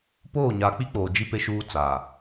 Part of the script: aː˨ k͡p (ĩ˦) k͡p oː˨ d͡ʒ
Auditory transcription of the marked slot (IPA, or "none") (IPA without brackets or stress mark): i˦